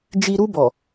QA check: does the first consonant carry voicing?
yes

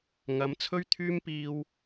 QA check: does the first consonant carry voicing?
yes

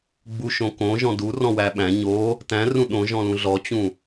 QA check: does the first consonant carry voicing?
yes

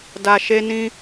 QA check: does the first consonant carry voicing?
yes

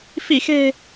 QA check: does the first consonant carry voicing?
no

